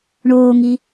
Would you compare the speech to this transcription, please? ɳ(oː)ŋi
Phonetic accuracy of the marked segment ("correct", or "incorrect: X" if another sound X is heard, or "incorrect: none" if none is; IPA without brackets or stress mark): correct